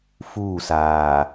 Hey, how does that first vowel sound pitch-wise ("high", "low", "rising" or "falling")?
falling